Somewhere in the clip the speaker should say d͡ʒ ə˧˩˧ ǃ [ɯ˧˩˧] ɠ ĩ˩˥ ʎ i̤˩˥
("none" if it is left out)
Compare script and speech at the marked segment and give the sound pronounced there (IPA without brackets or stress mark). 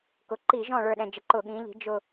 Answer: ʊ˧˩˧